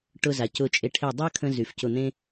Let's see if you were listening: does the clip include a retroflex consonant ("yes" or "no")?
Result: yes